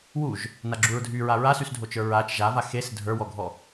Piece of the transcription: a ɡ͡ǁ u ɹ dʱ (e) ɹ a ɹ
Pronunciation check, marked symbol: incorrect: y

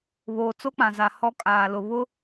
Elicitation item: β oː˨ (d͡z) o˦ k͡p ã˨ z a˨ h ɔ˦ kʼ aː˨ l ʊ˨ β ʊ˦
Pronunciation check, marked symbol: incorrect: t͡s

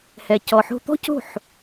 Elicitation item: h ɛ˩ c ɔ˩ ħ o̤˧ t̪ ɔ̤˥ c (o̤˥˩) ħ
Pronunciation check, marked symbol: correct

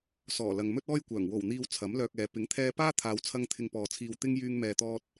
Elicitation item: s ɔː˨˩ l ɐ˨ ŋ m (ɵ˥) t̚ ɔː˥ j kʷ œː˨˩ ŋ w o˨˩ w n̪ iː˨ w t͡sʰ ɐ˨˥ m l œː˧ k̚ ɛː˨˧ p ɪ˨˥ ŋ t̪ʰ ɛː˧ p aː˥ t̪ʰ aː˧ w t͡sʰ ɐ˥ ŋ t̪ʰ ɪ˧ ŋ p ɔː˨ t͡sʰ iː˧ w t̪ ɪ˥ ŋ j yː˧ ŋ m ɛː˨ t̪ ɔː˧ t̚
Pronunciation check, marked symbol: correct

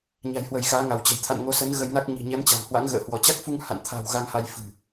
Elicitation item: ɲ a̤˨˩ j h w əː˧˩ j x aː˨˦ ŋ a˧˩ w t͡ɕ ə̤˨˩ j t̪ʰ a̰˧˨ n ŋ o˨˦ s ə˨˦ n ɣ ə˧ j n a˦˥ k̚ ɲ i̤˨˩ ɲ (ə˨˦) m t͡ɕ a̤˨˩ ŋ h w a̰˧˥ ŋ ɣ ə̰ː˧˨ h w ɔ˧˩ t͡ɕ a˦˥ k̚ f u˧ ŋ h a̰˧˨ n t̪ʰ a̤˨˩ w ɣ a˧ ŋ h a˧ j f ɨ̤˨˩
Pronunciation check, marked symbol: incorrect: ɛ˨˦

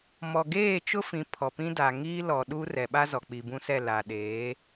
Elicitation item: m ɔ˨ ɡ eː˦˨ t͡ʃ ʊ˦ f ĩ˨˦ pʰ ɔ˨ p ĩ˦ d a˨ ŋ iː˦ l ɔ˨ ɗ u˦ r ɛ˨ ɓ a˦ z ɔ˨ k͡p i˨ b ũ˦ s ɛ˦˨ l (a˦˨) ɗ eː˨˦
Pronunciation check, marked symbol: incorrect: a˨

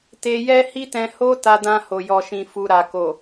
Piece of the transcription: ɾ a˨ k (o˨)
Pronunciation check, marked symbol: correct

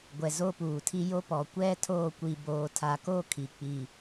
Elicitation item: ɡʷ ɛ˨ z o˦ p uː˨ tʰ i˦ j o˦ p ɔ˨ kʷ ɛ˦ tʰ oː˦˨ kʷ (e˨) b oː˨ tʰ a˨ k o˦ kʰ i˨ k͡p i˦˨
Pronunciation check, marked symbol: incorrect: i˨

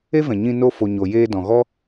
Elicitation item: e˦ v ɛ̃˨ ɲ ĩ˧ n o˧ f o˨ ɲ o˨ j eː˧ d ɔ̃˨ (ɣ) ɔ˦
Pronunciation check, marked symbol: correct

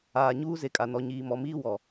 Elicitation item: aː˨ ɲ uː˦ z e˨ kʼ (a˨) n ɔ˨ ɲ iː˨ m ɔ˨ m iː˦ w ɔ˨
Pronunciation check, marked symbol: correct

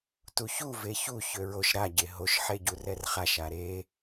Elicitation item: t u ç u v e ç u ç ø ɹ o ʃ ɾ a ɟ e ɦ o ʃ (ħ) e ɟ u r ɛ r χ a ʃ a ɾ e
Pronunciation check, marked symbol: correct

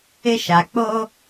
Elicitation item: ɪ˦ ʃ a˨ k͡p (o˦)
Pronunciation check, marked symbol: correct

